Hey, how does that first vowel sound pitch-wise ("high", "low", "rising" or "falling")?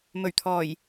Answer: low